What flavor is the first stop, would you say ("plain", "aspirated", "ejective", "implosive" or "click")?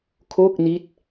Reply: aspirated